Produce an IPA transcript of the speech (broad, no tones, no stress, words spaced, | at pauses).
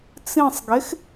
t͡sĩsˤɡex